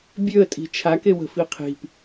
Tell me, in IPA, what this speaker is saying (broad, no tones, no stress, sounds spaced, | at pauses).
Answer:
bʲ ø ə̯ tʼ i̤ t͡ʃʰ a k e w ə̤ f i qʰ i̤ p